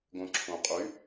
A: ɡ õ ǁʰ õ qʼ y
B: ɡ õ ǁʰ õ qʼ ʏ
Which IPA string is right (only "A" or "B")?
A